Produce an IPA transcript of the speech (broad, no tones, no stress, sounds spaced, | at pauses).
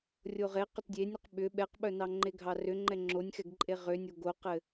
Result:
rʲ o ʁ e q ʏ t dʲ e nʲ ʏ q ɓ ʏ ɓ ɛ q ɓ œ n ɑ ŋ͡ǃ e ɡʱ ɑ r ʏ ŋ͡ǃ ɛ ŋ͡ǁ o nʲ x ɛ ɡ ǃʼ e ʁ ʏ nʲ o ɡ o q ɘ